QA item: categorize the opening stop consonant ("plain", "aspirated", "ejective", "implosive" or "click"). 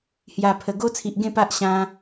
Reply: aspirated